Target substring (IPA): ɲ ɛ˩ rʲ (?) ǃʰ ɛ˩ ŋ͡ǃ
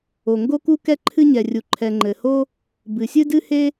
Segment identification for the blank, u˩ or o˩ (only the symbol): u˩